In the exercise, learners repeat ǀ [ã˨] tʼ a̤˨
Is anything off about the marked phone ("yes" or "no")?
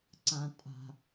no